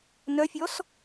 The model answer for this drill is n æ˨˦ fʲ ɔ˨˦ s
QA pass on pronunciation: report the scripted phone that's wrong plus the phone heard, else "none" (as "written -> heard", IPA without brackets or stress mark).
æ˨˦ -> œ˨˦